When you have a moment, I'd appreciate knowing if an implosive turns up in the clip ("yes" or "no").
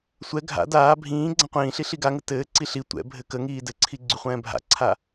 no